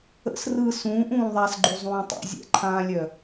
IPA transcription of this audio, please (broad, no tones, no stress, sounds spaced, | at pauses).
ə̰ s r ɯ s ũː ʔ ũː ðˤ a s ɡ͡ǃ u zˤ ũː tˤ ṵ zʲ ɛ̰ ǃʰ ãː lʲ œ